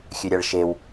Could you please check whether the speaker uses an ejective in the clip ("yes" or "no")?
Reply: no